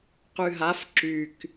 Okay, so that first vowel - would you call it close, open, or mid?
close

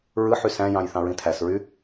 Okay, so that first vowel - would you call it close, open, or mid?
close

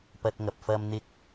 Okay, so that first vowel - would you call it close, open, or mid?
open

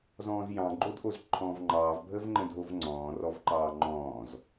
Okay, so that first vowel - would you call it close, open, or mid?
mid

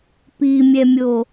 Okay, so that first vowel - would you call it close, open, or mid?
close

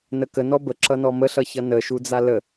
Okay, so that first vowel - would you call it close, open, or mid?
mid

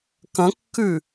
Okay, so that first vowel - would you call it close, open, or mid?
open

